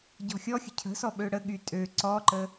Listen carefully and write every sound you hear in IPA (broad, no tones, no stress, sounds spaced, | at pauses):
ɟ ɔ̤ xʲ ɔ xʲ ə̤ cʰ ə̤ s ɔ ɓ ø ɽ ə ɠ y tʼ ø ǀ ɔ ǃ ə